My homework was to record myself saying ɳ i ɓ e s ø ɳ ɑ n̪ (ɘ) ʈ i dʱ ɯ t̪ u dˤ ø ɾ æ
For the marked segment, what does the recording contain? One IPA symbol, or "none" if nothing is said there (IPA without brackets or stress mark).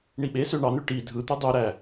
ø